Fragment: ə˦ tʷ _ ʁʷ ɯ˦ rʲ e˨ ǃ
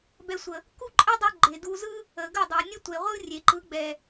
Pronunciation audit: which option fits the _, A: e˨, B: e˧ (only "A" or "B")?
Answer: A